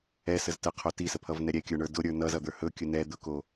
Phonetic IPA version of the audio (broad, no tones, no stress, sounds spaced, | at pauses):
ɛ s ə z t ə qʰ o t i s ə pʰ ʌ v n ɛ ɾʲ ɛ kʲ ə˞ ɳ ə˞ d ʊ ɾʲ ə˞ n ʌ z ʌ d̪ ə˞ h ɵ kʲ ɵ n ɛ d̪ ʊ k o